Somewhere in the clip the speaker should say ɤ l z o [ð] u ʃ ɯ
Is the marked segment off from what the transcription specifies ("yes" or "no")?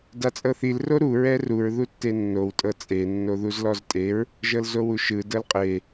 yes